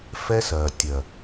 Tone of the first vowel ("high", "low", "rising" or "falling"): high